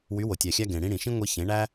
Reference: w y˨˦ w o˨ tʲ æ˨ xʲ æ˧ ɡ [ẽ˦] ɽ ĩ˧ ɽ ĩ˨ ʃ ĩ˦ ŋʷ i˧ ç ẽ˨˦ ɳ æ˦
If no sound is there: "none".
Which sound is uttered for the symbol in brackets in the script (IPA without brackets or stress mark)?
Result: ẽ˨